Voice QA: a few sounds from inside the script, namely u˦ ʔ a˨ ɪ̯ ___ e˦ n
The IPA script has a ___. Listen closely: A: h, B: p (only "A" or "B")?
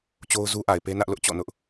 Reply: B